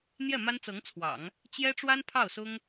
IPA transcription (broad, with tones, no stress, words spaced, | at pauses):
n̪jɛ˥˩ma˥nt͡sɤ˧˥ŋt͡sʰwɑ̰˨˩˦ŋ | t͡ɕjɛ˥ʈ͡ʂwa˥n pʰɑ˥˩ʊ̯sʊ˥ŋ